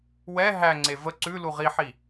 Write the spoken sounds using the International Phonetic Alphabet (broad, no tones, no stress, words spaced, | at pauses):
wɛ ɦæŋ͡ǀe və ǀʉ luʁiħi